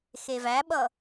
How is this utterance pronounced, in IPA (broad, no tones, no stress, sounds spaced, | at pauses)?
x e v æ ɓ ʌ